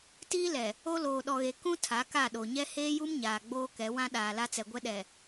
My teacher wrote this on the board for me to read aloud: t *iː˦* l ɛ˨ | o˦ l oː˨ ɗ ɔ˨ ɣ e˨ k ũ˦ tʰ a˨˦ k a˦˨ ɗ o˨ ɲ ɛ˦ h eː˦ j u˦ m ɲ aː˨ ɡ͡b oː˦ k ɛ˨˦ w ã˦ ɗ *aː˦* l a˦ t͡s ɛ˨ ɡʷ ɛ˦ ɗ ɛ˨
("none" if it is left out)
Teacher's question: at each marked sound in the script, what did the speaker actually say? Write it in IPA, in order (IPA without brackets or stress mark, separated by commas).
iː˦, aː˨